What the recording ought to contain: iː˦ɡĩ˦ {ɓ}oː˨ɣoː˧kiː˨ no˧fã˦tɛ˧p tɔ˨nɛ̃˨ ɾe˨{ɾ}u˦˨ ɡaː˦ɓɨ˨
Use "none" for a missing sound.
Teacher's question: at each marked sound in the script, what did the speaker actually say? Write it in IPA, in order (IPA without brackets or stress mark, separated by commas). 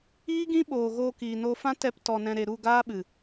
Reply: ɓ, ɾ